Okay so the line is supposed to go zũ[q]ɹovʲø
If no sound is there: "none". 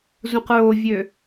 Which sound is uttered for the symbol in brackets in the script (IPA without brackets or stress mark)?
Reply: q